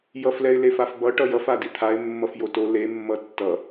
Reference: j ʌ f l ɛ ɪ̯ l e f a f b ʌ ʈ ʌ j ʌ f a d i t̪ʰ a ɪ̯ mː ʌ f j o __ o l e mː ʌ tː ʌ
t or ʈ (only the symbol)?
t